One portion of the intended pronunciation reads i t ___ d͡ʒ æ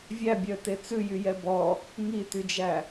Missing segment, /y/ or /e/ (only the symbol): y